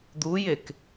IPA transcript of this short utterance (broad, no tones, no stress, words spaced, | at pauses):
d̪ujek